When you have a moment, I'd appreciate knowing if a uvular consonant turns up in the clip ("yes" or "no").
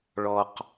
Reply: yes